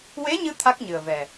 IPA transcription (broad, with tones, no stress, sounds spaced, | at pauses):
w e˧˥ ɲ ɨ˧ t̪ʰ a˦˥ k̚ ɲ ɨ˨˩ ə̯ v ɛ˨˩